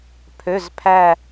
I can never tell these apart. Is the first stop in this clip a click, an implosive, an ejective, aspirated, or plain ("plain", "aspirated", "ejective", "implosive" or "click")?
aspirated